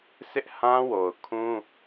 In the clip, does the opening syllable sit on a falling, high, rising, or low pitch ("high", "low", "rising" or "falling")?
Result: high